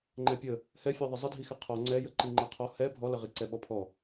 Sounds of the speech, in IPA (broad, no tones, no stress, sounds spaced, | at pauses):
ŋ͡ǃ ɛ pʲ ə | h ɛ fʲ ɛ ðˤ ə zˤ ə dʱ i x ɛ qʰ ɔ ŋ͡ǀ ɛ j ə ǃ i ŋ͡ǃ ɛ qʰ ɔ h ɛ bʱ ɔ l ə ʁ i ǀ ɛ ɓ ɔ pʰ ɔ